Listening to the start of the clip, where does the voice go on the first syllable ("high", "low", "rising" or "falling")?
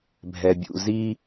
low